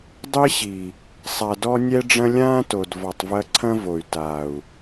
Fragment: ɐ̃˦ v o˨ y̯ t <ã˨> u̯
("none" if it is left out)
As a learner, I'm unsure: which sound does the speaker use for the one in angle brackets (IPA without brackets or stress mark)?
a˨